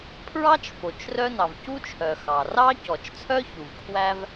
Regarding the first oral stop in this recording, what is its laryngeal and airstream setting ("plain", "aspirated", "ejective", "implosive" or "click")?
aspirated